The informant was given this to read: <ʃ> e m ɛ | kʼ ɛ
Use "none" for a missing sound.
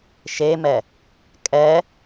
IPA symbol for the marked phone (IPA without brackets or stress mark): ʃ